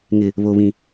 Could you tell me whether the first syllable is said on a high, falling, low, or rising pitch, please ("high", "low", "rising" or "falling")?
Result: low